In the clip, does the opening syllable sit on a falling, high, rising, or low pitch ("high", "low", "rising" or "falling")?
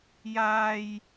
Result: high